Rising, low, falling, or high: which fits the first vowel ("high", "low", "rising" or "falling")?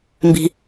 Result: low